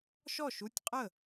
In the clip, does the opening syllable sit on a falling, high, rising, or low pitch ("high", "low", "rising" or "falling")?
falling